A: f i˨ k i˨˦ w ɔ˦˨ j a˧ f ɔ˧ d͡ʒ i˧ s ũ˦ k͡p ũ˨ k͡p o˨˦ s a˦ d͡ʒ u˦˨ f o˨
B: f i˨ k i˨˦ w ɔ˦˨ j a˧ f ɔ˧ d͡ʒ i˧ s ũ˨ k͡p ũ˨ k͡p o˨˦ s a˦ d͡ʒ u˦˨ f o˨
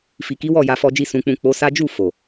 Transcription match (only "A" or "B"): B